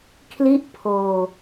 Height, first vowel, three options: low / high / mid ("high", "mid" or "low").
high